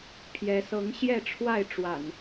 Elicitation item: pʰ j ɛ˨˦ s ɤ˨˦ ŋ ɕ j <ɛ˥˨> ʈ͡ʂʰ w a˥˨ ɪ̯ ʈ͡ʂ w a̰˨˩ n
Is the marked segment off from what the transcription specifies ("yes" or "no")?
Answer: no